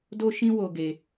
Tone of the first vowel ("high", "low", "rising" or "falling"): high